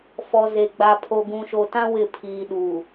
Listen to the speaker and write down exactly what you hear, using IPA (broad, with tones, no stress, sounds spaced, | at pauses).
f ɔ˨ z e˨ ɡ͡b a˨ pʰ o˨ ɡ ũ˨ ʃ o˨ t ã˦ w ɪ˦˨ pʰ iː˨ ɗ u˨